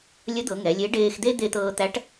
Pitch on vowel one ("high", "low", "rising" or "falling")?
rising